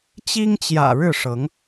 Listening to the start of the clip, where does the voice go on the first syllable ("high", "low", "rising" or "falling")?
high